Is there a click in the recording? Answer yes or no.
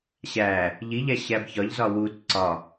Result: yes